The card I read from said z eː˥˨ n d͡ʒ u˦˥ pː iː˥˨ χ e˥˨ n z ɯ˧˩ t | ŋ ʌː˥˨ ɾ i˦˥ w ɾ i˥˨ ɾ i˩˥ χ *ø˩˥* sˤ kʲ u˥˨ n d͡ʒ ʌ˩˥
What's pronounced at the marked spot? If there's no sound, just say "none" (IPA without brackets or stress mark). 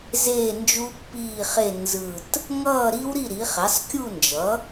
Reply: ɛ˩˥